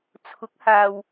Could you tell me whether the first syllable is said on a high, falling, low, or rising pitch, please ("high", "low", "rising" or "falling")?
rising